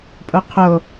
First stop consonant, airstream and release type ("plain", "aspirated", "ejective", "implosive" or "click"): ejective